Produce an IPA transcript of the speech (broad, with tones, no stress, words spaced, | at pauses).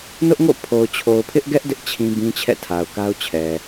nʊ˦ʔŋo̰˦˨ pʰo˨ʊ̯ t͡ɕʰo˨ʊ̯pʰɪ˦ʔɡɛ˦ʔ dɪ˦ʔ t͡ɕʰĩ˦ bĩ˦t͡ɕʰɛ̰˦˨tʰa˨ʊ̯ ka˦ʊ̯t͡ɕʰɛ˨